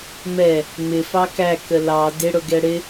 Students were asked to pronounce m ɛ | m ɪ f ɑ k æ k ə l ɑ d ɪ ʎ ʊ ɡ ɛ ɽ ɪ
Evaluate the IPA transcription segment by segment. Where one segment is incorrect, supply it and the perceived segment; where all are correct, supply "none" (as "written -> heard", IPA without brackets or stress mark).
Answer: ʎ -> ɽ